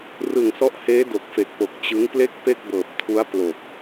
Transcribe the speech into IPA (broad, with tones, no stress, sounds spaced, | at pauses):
r ɯ˨˩ ŋ s ɔ˦˥ ʔ h eː˦˥ d o˨˩ k̚ f e˨˩ k̚ p o˨˩ k̚ t͡ɕ ɯ˦˥ ŋ p l e˥˩ k̚ p e˥˩ k̚ b ɤː˨˩ p̚ tʰ u˦˥ a̯ p l o˨˩ k̚